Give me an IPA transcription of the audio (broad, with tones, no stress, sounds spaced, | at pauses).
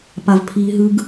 p a˦ v pʰ iː˦ ɦ ɯː˦ ɡ